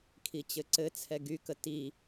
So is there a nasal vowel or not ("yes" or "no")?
no